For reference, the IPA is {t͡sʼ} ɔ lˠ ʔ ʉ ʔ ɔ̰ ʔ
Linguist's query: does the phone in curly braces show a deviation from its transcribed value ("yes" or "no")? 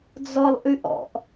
yes